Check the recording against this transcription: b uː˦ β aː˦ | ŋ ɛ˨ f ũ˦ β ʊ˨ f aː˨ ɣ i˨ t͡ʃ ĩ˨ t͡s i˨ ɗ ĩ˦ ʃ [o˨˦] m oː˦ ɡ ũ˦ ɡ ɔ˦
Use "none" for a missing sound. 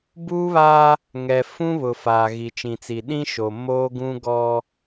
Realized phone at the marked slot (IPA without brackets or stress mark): o˨